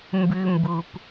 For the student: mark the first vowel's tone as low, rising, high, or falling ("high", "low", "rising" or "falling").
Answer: high